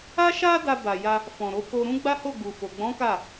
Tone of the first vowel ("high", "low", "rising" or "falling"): high